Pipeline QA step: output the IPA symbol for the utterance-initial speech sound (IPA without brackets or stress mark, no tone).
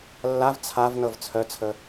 lː